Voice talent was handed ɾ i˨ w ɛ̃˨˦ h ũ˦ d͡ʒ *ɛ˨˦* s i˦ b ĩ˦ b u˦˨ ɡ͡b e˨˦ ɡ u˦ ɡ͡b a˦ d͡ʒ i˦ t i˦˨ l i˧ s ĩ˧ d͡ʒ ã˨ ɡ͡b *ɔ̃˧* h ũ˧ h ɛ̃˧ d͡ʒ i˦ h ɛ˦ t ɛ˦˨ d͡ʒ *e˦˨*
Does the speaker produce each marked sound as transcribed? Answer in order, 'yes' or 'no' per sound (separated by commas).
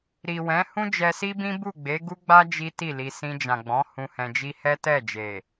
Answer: no, no, no